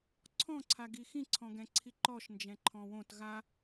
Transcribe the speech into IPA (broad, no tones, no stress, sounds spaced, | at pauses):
ǀʰ ɔ̃ ǀʰ a ɡ i x ĩ ǀʰ ɔ̃ ɡ ɛ̃ ǀʰ i ǃ ɔ ʃ n d͡ʒ ɛ̃ ǃʰ ɔ̃ w õ t ɣ a